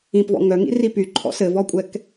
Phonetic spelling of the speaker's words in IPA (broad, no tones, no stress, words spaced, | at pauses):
ĩpvɔ̰ ŋœŋḭri pyǃʰɔ̰ sɘvɔkʷʼɛk